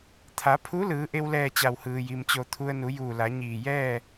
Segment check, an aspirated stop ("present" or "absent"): present